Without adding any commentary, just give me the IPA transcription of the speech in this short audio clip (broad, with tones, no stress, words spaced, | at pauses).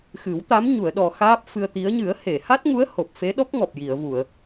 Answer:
xɨ˨˩˦wt̪a˧˥m ɲu˨˩˨ə̯ɗɔ˨˩ xaː˦˥p̚ fɨ˧ə̯t̪i˧˥ə̯ ɲɨ˨˩˦ə̯he˨˩˨ha˦˥t̚ŋu˧˥ə̯ ho˨˩p̚fe˧˥ɗɔ˦˥k̚ŋɔ˨˩p̚ ji˨˩˨ə̯vu˨˩˨ə̯